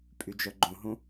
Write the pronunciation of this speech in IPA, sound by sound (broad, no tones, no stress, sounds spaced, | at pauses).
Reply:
pʼ y d͡ʒ œ ɡ͡ǃ ũ ɦ ũ